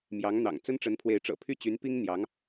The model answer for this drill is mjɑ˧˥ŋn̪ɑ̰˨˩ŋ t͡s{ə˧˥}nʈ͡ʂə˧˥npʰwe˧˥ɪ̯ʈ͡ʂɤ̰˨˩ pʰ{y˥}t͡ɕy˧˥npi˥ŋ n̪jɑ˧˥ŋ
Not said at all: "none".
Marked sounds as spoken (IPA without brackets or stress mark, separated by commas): ə˥, y˥